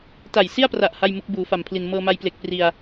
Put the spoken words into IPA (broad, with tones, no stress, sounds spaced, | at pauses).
t a˨˩ j s i˥˩ a̯ p r a˨˩ ʔ h a˥˩ j m u˦˥ k̚ b uː˩˦ f a˨˩ m pʰ l i˨˩ n m ɤː˧ m a˧ j p l e˨˩ k̚ p r i˧ a̯